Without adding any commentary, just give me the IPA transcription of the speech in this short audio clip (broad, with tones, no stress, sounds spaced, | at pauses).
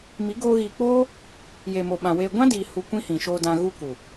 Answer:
m i˨˦ ɡ oː˧ ɣ iː˨ k͡p oː˦ | j e˨ m o˨ ɓ ã˨ w eː˧ ɡʷ ã˦ d iː˨ h u˨ kʷ ĩ˦ h ĩ˨ ʃ oː˧ d ã˧ ɣ u˦ k u˨